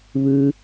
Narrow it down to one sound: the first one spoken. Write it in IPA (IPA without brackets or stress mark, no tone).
β